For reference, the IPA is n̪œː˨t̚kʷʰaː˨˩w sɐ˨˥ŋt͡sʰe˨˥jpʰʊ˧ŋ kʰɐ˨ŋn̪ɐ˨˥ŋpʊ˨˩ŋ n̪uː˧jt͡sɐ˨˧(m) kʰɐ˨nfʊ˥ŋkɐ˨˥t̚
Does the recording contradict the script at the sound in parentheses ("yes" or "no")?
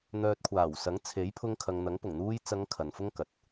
yes